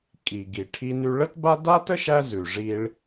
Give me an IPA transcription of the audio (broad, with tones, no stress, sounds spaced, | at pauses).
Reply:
kʼ i˩ ɡ i˩ ʈʰ i˧ n ʉ˧ ɭ ə˥ t b a˥ d a˥ t ə˥ ʃ æ˥ z ʉ˩ ʐ i˧ ɭ